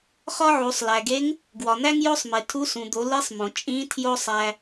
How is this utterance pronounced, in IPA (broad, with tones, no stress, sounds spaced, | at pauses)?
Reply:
χ ɒ˥ ʕ u˩˧ sˤ l æ˩ ɡ e˧˥ ŋ | ɡ w ɒ˩ n̪ æ˥ ŋ j o˥ sˤ m e˩ tʰ u˧˥ s ũ˩ d̪ o˩˧ l i˧˥ sˤ m õ˩ t͡ʃʼ ĩ˧˥ tʰ j o˥ sˤ æ˧